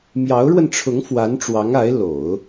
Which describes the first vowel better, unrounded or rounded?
unrounded